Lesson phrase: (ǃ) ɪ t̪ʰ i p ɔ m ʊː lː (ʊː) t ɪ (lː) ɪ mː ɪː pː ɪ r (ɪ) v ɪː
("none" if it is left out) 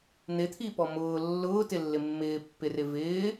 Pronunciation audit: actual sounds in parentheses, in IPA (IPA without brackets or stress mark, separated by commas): n̪, ʊː, lː, ɪ